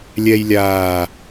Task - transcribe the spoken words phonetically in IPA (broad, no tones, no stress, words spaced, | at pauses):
lʲɛj lʲaː